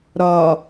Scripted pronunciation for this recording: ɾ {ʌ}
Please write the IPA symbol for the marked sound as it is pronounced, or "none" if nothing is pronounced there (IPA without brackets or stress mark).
ɒ